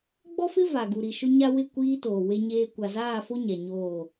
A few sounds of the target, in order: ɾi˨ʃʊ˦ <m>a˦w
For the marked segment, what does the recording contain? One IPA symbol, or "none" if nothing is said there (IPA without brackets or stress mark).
ɲ